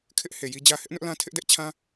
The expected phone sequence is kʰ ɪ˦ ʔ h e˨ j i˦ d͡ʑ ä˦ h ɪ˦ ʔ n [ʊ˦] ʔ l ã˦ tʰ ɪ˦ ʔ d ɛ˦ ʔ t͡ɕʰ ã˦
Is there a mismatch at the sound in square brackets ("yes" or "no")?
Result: no